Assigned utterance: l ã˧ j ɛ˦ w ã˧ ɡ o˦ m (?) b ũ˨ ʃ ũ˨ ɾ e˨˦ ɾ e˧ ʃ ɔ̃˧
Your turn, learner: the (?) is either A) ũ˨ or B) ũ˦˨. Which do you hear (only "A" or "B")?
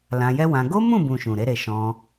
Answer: B